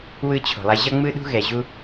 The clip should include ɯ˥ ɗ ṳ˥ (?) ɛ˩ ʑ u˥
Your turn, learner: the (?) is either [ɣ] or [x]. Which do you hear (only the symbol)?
ɣ